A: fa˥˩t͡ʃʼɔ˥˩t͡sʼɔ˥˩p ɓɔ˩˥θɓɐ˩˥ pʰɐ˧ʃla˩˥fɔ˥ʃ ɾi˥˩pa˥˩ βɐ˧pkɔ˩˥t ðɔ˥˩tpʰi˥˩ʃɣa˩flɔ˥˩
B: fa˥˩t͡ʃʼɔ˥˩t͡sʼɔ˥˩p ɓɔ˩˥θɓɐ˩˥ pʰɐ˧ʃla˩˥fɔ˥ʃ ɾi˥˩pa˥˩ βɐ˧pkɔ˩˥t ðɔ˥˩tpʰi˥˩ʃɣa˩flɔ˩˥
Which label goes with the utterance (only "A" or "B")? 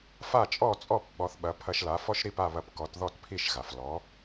B